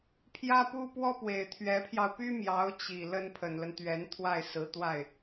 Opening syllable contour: high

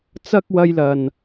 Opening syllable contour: high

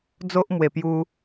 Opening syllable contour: high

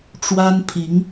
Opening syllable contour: high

